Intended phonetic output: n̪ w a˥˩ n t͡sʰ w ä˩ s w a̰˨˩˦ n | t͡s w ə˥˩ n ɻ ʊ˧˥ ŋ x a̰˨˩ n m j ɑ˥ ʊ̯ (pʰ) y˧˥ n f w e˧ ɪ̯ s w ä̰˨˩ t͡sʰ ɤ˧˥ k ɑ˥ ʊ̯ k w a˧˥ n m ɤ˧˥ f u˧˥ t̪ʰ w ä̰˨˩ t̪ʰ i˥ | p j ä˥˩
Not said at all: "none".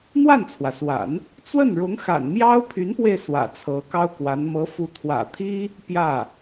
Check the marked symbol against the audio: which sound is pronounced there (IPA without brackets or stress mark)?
pʰ